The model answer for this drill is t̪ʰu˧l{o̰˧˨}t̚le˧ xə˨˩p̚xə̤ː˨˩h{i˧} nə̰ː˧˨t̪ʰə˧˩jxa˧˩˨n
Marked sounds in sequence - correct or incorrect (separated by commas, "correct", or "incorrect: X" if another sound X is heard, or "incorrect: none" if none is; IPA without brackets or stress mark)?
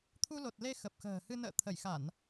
incorrect: o˨˩, incorrect: ɨ˧